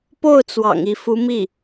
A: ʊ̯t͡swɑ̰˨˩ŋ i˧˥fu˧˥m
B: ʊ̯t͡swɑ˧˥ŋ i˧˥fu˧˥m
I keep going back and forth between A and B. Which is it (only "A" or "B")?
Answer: A